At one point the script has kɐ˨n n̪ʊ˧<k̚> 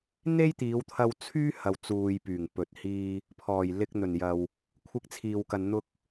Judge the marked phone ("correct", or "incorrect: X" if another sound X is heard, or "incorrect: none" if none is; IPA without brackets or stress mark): correct